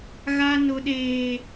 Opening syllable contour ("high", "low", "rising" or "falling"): high